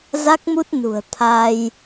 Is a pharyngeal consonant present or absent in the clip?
absent